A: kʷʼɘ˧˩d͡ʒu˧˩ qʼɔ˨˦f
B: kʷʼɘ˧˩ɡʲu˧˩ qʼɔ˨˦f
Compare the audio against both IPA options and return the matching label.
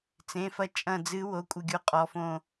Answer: B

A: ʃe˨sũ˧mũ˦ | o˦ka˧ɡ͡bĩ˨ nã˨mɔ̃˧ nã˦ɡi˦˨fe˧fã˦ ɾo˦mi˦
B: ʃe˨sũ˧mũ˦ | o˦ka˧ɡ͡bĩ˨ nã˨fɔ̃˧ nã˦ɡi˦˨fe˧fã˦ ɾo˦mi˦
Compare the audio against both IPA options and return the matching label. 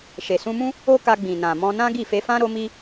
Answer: A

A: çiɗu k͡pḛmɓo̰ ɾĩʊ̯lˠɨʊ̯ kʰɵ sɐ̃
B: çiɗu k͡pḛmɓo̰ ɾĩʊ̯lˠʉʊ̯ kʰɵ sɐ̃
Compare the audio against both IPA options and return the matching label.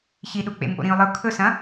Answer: A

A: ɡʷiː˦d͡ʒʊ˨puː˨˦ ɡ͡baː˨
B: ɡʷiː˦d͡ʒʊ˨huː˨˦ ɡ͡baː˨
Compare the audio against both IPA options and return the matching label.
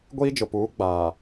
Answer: A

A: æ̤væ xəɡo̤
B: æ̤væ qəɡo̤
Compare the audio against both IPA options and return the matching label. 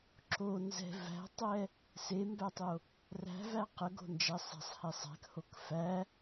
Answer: B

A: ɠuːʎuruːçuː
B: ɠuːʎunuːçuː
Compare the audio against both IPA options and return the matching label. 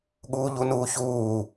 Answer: B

